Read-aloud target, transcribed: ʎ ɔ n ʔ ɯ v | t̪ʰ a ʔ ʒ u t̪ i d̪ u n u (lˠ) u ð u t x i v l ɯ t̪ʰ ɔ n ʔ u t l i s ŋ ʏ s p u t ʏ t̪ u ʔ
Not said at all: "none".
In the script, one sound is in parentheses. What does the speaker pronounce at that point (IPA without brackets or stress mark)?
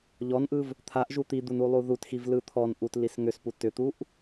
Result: lˠ